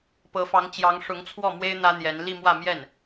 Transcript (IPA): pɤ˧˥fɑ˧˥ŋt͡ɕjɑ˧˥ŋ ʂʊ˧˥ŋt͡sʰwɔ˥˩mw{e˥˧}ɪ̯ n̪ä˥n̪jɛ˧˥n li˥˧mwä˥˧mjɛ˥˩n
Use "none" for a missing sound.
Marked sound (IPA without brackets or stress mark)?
e˥